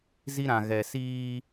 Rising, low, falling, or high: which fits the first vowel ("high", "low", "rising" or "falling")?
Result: high